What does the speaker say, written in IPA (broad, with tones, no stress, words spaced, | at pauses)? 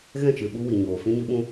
ɣɛ̃˦˨t͡ʃɨ˨ ɓu˦wi˨ɲoː˨ fĩ˦ɲɨ˦ɓũ˦